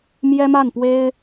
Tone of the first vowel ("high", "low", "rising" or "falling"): high